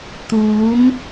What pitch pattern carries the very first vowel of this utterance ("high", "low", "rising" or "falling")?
rising